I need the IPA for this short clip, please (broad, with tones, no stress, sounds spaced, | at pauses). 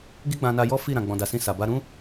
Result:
ɡ i˦ ɡ͡b ã˧ n a˧ j ɔ˦ f i˦˨ ɾ ã˨ ɡ͡b ɔ̃˨ d a˨ s ĩ˧ s a˨ b a˧ ɾ ũ˦